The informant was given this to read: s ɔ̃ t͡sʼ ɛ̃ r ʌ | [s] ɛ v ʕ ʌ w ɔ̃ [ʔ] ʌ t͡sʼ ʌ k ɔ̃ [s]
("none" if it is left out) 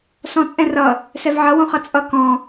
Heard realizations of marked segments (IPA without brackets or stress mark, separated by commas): s, χ, none